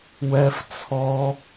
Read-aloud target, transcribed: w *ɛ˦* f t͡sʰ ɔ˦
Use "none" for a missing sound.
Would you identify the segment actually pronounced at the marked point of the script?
ɛ˦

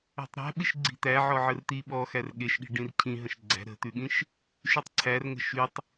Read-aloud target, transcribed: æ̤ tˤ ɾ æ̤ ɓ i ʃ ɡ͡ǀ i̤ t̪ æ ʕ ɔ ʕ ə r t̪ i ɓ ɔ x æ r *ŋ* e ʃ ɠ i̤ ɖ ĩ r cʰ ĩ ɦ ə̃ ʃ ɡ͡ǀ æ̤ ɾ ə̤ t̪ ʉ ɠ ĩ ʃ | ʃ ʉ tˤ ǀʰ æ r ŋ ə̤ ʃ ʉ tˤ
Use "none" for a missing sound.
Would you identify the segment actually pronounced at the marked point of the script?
ɠ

